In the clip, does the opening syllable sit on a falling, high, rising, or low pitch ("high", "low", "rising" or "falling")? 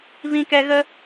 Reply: low